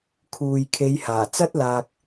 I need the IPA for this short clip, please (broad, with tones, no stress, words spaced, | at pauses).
kʰuː˨jkʰe˨˧jhaː˨˩ t͡sɐ˥t̚laː˨k̚